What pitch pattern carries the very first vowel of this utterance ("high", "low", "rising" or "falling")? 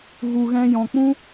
low